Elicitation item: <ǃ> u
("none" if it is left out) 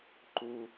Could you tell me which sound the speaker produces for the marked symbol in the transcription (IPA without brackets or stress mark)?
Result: ǃ